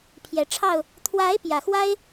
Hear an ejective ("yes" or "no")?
no